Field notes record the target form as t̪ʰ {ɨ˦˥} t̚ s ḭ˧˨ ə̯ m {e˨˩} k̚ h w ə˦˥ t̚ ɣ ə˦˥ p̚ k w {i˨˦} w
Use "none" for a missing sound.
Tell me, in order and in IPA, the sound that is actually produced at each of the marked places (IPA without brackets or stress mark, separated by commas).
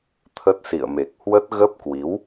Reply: ə˦˥, e˨˩, i˨˦